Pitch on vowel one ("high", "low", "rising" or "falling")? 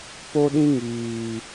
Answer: high